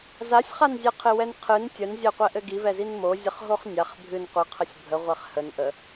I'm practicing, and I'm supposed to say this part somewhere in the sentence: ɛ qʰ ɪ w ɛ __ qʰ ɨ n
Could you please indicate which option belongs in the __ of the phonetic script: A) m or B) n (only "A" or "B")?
B